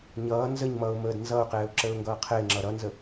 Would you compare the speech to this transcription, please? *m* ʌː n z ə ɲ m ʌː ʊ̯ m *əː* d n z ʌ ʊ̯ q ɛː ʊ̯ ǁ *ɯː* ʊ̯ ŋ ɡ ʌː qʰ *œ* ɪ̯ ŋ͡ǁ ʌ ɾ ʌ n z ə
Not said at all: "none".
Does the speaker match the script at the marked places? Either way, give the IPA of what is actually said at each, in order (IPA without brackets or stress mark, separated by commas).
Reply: ɲ, əː, əː, ɛ